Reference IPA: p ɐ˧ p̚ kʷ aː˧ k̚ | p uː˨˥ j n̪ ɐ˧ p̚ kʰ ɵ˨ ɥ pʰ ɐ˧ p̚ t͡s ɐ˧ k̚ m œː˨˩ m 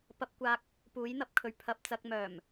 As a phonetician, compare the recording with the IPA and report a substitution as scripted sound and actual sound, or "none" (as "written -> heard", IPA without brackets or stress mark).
none